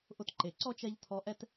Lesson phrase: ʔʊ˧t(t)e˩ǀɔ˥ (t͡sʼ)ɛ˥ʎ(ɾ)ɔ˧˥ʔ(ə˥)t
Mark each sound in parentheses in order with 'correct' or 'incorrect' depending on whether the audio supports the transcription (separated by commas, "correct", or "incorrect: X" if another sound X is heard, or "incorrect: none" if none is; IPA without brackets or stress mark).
incorrect: ǃ, incorrect: t͡ʃ, incorrect: tʰ, incorrect: ɛ˥